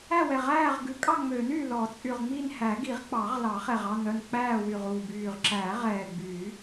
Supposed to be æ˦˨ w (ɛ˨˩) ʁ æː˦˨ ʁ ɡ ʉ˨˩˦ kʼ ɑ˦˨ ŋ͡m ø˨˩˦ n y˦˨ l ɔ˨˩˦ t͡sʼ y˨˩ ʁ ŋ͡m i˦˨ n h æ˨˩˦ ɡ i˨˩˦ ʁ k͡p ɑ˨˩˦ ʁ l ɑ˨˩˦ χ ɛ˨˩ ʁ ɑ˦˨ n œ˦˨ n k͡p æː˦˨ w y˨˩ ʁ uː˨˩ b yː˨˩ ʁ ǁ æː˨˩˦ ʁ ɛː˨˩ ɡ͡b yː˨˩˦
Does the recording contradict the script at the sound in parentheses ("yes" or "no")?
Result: no